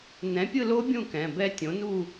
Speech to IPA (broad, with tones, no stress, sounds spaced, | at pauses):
n ɛ̃˩˥ pʲ ɯ˥˨ l o˦˥ bʲ ũ˥˨ k ɛ̃˩˧˩ b ɛ˦˥ tʲ õ˩˥ n u˥˨